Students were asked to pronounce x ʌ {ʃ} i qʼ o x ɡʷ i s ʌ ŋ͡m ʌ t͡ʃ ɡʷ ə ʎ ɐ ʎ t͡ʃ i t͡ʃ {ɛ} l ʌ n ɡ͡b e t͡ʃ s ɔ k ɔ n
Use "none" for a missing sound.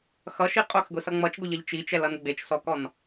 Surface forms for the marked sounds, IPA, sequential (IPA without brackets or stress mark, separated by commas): ʃ, ɛ